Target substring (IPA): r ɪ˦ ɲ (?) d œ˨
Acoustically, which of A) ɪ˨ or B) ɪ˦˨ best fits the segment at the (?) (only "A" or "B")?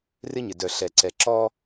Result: A